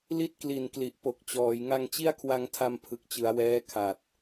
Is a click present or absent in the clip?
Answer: absent